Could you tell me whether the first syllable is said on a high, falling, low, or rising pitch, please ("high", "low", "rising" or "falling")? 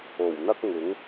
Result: low